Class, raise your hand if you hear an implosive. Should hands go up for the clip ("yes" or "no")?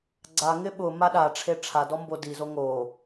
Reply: yes